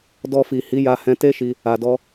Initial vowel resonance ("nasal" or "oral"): oral